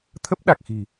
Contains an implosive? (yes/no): yes